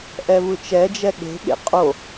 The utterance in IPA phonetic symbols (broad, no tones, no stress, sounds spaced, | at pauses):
ʔ ɛ v ɯ t͡ʃ ɛ d͡ʒ ɛ ɠ e̤ ɠ ḛ qʼ o